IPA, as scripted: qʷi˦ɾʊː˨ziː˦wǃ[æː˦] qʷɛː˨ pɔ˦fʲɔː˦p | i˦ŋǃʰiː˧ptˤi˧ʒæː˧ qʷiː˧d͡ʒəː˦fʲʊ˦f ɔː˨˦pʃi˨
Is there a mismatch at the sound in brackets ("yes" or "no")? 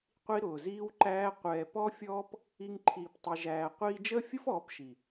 no